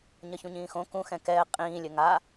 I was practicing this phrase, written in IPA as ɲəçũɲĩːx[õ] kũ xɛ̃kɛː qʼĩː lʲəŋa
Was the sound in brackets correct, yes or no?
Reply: yes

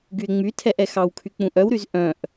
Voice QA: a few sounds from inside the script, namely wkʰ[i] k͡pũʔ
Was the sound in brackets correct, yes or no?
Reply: no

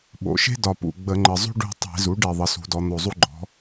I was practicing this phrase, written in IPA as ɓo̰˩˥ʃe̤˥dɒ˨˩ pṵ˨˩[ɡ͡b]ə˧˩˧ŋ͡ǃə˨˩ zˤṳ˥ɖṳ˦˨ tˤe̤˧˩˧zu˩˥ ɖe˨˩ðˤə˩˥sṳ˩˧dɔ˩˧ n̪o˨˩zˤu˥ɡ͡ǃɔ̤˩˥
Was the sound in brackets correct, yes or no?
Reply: yes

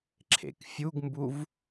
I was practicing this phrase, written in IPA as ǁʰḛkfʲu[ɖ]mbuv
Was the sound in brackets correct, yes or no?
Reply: no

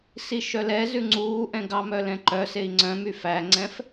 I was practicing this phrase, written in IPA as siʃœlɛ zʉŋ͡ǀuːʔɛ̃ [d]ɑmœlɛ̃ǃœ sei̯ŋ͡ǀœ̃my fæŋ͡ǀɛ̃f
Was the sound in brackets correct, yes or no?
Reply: no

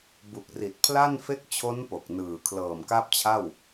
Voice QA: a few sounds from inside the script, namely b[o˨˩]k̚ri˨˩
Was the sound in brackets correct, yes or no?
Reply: no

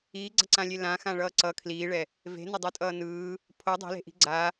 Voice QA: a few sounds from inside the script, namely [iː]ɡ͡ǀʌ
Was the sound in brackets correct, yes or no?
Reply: yes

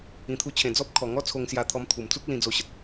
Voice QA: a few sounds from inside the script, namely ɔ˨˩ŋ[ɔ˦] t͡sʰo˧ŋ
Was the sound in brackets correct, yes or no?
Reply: yes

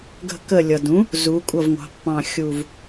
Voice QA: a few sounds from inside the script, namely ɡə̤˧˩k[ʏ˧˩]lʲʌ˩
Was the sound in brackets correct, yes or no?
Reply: no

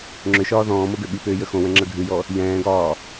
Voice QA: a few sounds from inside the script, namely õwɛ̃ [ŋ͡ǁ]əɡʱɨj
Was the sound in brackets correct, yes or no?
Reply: yes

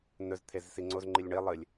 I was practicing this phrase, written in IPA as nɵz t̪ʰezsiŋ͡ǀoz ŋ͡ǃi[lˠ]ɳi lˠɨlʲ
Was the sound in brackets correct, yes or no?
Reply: no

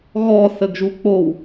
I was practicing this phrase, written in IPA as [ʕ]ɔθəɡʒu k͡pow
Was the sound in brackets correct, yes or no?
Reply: no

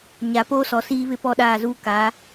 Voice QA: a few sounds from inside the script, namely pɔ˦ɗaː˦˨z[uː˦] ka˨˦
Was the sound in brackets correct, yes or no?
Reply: yes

